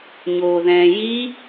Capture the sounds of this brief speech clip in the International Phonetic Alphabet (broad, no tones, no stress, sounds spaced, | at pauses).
ɲ oː ð ɛ̃ː j i